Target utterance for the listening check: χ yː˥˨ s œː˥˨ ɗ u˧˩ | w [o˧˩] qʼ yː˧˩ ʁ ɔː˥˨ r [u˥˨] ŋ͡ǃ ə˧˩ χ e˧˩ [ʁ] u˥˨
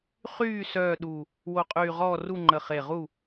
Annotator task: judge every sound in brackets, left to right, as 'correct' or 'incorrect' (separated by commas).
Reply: correct, correct, correct